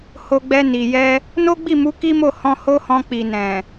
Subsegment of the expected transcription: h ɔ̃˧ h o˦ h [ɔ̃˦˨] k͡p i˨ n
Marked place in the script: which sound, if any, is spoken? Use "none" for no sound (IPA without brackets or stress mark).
ɔ̃˧